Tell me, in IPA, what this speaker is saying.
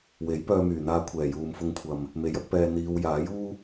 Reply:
w e˨˥ j p œː˧ m yː˨˩ n̪ aː˧ kʷʰ ɛː˨˩ j uː˨ m f ʊ˧ ŋ kʷʰ ɐ˨ m | m e˨˥ j ɐ˥ k̚ p ɛː˧ n̪ iː˧ w j aː˨˥ j uː˥

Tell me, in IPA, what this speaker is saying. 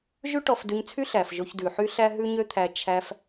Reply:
ʒ ʉ˦ ʈ ɔ˧ f d ʉ˧ ɲ t͡sʰ y˦ ɬ æ˨ f ʒ o˧ ç d ʉ˨ ħ y˦ ɬ æ˦ ɦ ʉ˦ ɲ ø˦ t̪ʰ æ˧ t͡ʃʰ æ˧ f

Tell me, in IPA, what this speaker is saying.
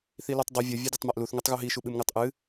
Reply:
θ i l ʉ tˤ dˤ ɵ vʲ ɐ vʲ e dʲ a tˤ m a ʔ l u θ ŋ ɵ tˤ ɣ u ɦ i ʃ u ɓ ɨ m ŋ ɨ tˤ ʔ ɨ

